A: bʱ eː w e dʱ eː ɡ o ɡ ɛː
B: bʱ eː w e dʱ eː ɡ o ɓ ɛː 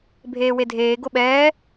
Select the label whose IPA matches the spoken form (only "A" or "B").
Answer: B